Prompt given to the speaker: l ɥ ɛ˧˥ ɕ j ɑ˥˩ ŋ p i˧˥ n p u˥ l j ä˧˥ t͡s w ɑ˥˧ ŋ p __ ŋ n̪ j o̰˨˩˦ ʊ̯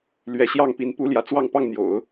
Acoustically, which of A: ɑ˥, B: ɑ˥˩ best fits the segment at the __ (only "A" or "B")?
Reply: B